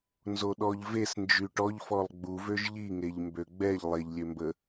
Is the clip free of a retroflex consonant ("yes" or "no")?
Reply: no